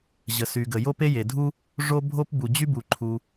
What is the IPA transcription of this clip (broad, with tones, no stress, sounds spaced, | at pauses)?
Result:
ʑ ə˩ s y˩ ɡ ə˩ j o˥ p e˥ j e˩ dʱ u˥ | ʐ o˥ bʱ o˥ p b u˩ d͡ʑ y˥ b u˩ ǃʰ u˩